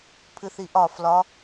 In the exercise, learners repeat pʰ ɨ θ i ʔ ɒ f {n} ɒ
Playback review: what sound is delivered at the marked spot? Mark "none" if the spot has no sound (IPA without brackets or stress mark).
l